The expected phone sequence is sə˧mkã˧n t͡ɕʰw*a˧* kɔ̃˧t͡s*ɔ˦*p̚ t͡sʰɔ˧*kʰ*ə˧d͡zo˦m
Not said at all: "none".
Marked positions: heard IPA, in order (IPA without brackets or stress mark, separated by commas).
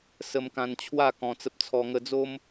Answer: a˥˧, ə˦, ŋ